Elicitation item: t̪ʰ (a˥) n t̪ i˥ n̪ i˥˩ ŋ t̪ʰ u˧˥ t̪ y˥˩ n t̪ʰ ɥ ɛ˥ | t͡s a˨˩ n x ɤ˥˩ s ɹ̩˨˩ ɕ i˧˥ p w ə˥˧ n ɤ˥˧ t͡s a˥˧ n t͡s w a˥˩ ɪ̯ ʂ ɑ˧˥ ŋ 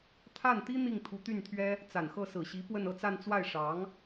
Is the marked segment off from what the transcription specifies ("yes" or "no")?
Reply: yes